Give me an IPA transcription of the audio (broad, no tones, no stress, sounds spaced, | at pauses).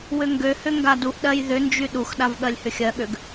w ʏ ŋ ɡ ø h ʏ ŋ ɡ a d u ʔ ɗ ɜ j ð ʏ n d͡ʒ y ɗ u x ɗ a v ɠ ɜ lʲ h ʏ xʲ ɜ ɠ ø ɡ